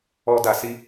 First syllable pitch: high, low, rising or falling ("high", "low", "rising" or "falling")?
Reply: high